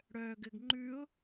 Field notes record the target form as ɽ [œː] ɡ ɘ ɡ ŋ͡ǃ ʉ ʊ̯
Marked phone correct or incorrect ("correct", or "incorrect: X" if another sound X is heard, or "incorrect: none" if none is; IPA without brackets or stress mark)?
correct